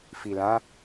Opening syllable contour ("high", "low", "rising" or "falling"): low